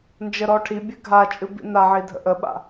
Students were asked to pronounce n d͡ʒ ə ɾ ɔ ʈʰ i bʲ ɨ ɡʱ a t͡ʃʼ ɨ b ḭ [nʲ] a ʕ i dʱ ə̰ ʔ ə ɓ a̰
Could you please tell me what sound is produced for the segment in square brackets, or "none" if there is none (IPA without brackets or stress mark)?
n